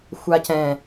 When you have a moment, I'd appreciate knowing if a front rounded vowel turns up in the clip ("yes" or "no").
no